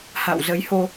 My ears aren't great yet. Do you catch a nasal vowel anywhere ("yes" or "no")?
no